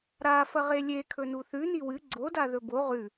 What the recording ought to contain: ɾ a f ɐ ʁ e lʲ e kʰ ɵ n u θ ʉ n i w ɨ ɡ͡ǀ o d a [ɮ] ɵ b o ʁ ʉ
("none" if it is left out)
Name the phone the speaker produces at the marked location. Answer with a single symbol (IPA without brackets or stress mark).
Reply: ð